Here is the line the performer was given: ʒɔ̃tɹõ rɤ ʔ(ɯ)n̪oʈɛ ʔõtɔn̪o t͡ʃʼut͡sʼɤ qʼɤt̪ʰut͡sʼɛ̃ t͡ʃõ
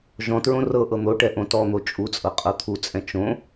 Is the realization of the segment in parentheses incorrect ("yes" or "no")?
yes